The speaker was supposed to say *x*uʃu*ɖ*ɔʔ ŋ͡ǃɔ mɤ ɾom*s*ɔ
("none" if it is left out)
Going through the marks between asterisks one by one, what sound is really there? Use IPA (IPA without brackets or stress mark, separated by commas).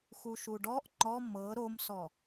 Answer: x, ɖ, s